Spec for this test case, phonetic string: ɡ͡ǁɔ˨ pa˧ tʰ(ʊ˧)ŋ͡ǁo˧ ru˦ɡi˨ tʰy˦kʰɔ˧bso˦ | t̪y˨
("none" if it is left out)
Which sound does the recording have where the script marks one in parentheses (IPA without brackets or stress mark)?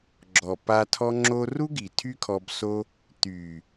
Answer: ɔ˧